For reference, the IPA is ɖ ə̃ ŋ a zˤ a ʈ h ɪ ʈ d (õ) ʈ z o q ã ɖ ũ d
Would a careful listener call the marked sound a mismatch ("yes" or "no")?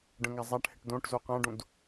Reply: no